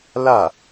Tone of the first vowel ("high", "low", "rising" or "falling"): falling